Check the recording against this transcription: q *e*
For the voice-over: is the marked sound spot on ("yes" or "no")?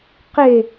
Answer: yes